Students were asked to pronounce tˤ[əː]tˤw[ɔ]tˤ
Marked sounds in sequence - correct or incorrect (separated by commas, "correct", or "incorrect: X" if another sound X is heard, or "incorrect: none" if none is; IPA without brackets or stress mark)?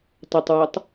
incorrect: ə, correct